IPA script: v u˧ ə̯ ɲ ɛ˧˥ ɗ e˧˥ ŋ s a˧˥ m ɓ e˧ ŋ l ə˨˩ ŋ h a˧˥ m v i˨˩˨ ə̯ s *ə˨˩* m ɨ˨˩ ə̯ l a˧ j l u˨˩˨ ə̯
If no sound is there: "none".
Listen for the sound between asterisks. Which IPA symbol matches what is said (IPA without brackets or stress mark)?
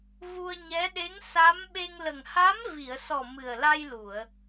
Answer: ɔ˨˩